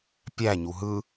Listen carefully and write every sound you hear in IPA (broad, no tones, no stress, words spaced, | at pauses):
pʲæɲu ɦɯ